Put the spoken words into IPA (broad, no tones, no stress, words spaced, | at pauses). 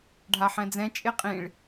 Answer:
ɖʱaħɛ̃d͡zɛ̃ t͡ʃʼeqʼĩɭ